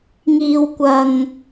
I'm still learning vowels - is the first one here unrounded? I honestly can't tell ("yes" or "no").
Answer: yes